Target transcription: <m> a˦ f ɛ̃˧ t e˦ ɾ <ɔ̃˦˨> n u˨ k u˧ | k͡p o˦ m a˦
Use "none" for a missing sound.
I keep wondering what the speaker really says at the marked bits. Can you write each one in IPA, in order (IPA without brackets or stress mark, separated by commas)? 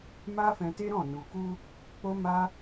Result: m, ɔ̃˦˨